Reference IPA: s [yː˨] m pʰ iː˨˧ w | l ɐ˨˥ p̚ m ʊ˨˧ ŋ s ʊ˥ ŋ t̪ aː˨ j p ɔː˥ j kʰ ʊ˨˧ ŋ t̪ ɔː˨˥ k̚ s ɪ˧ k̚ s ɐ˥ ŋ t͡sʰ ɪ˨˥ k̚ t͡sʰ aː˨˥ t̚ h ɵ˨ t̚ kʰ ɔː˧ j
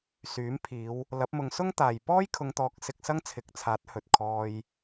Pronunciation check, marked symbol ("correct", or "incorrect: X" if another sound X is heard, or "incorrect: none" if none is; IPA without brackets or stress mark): incorrect: yː˨˥